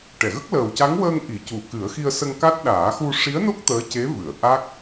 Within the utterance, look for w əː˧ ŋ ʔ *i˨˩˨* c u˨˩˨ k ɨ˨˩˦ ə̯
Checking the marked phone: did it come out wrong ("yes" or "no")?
no